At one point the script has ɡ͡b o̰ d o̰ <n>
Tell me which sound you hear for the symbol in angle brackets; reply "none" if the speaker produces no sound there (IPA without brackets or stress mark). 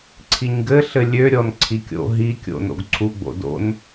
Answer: n